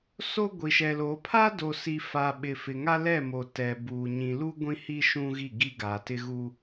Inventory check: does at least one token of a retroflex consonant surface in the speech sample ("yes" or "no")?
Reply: no